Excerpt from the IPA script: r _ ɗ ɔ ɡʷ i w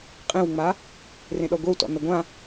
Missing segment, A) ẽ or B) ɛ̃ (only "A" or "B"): A